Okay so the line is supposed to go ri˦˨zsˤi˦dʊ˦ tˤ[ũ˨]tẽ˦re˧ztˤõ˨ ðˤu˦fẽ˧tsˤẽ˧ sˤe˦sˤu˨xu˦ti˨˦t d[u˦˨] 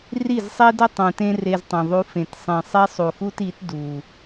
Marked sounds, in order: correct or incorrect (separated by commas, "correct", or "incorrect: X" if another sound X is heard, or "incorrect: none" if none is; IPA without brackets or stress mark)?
correct, incorrect: u˨